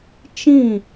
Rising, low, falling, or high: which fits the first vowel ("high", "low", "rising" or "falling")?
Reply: falling